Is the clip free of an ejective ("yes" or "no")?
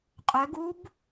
no